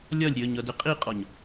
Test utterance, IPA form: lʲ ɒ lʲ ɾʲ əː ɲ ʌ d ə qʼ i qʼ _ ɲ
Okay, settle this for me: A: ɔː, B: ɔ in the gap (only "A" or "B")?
B